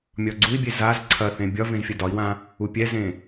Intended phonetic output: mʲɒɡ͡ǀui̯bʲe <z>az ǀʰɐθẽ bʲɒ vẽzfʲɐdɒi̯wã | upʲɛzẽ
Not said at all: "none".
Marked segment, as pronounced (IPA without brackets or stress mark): z